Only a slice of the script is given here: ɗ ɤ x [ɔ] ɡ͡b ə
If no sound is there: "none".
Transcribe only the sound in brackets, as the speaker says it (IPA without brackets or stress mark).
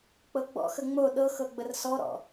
ɤ